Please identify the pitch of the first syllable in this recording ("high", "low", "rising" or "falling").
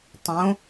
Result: rising